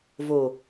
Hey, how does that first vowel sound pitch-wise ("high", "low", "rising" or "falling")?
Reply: low